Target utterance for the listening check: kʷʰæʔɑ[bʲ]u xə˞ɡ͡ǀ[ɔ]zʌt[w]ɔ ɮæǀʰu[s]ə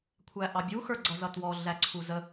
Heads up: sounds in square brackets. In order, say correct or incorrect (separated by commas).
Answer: correct, incorrect, correct, incorrect